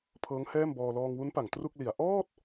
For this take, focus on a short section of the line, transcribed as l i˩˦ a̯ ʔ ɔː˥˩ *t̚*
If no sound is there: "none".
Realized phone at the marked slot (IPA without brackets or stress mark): t̚